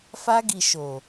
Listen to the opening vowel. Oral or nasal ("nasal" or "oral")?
oral